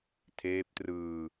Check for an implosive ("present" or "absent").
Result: absent